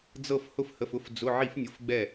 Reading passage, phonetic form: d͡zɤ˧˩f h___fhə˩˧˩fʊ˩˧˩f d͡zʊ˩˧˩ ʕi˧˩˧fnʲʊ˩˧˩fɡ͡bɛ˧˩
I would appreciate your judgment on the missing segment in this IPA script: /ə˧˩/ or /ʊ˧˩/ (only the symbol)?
ʊ˧˩